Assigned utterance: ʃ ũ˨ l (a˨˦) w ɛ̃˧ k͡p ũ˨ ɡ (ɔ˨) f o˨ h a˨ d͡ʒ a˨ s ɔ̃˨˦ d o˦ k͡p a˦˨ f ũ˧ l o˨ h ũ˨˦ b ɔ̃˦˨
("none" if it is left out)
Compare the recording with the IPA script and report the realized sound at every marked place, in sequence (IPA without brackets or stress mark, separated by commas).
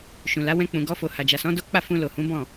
a˨˦, ɔ˧